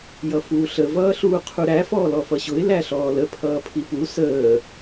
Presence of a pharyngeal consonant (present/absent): absent